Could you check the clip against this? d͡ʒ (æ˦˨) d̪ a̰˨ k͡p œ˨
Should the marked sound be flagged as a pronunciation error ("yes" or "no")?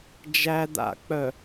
yes